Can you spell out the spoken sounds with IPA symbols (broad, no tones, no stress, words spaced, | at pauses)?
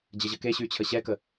d͡ʑəʑəkeɕy t͡ɕʰəɕɛkə